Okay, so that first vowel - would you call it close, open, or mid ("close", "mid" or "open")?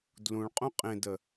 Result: close